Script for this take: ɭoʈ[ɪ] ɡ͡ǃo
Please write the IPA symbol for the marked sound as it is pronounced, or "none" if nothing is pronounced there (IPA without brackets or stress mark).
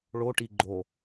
i